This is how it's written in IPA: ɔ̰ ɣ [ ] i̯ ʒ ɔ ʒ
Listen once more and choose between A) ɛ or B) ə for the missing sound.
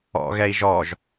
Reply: A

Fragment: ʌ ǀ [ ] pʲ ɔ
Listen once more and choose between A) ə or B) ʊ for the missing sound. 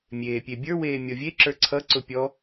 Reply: B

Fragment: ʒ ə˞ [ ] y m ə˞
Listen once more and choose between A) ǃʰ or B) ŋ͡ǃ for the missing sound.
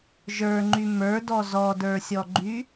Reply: B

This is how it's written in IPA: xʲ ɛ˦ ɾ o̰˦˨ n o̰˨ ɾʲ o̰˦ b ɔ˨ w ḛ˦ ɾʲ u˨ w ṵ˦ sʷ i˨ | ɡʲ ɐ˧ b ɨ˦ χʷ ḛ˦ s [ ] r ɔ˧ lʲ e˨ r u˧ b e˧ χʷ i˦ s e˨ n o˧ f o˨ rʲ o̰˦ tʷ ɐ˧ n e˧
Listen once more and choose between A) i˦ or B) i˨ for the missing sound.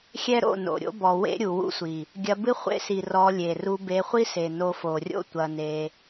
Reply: B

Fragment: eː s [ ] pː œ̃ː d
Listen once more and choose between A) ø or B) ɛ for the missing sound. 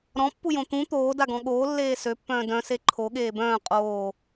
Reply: A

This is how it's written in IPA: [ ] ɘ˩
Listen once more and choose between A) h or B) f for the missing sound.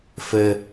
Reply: B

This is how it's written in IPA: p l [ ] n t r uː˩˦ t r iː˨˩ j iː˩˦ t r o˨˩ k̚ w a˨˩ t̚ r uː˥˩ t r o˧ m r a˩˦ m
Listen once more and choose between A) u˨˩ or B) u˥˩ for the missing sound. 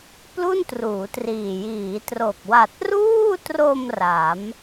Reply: B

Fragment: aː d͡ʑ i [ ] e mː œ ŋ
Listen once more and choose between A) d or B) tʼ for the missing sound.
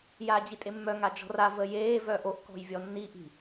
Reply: B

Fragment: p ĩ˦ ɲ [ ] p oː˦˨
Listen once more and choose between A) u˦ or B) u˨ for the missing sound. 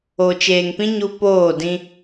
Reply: A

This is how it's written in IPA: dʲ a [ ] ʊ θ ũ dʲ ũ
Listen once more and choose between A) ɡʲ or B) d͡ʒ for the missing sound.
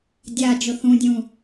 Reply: B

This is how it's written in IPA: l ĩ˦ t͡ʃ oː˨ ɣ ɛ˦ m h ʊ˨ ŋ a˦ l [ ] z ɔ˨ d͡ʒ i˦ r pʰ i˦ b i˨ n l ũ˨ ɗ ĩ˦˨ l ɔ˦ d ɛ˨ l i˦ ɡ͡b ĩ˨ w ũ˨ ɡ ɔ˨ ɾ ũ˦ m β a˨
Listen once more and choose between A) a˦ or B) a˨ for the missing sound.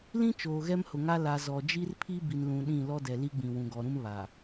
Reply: B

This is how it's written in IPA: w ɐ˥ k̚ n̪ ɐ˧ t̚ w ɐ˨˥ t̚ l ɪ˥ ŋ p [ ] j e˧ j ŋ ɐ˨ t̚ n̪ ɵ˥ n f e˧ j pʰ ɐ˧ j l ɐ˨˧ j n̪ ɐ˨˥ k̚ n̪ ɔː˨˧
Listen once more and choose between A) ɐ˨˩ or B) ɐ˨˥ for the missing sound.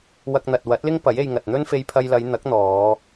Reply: B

